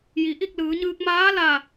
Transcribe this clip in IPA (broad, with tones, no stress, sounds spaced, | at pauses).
j i˩˧ ʔ i˥˨ k̚ l ɯː˩˧ ɲ ɯː˧ k̚ m aː˧˥ l a˧˩